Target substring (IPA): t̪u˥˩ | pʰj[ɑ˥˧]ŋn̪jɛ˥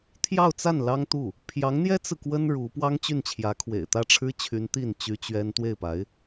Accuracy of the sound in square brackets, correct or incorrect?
incorrect